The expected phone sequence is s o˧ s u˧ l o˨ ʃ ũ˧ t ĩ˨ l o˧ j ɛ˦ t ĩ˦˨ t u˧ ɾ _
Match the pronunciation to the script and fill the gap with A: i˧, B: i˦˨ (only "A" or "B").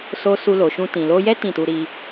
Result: A